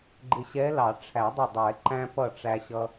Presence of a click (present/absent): present